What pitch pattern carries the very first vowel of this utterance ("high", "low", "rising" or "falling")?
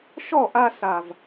falling